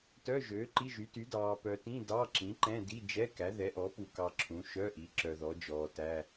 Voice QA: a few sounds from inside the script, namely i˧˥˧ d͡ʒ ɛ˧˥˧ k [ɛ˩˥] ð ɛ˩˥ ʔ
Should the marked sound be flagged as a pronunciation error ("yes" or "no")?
yes